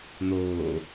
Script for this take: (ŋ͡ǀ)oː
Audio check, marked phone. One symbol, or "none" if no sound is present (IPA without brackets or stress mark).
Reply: n̪